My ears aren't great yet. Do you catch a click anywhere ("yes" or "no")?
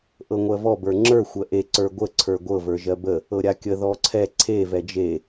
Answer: yes